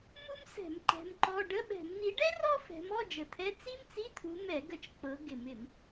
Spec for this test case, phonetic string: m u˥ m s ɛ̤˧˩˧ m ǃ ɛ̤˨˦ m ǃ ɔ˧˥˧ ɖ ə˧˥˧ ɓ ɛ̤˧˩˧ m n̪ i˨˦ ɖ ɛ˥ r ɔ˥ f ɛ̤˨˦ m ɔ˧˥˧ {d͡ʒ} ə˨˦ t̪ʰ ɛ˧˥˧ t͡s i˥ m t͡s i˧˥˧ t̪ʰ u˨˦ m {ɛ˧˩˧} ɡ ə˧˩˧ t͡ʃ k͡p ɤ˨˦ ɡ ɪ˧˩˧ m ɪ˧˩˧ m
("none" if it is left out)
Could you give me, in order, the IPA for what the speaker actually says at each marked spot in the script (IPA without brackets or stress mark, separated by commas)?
d͡ʒ, ɛ˧˩˧